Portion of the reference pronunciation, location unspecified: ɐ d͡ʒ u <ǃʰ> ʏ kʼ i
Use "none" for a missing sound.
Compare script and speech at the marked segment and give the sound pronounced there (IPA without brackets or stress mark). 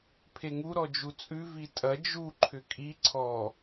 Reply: ǃʰ